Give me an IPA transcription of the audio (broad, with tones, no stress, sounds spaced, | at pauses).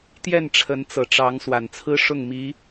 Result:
t̪ j ɛ˥˩ n ʈ͡ʂʰ ə˧˥ n t͡s ɤ˨˩ ʈ͡ʂ ɑ˧˥ ŋ s w a˨˩ n t͡sʰ ɹ̩˥ ʂ ʊ˥˩ ŋ m i˧˥